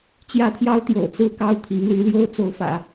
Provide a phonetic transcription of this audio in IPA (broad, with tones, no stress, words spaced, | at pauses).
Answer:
t͡ɕjä˥t̪ʰjɑ˥ʊ̯t̪jo̰˨˩ʊ̯ t͡sɹ̩˥˧kɑ˥˩ʊ̯ t̪ʰi˧˥ŋ ly˧˥ljo˥ʊ̯t͡so˧˥ʊ̯fä̰˨˩˦